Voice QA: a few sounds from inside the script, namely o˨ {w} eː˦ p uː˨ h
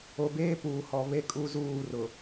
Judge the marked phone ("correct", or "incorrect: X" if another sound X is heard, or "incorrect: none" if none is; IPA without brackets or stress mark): incorrect: b